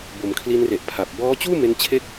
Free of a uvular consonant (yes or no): yes